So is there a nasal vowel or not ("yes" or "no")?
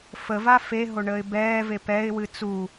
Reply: no